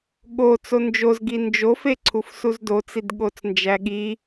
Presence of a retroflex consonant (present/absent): absent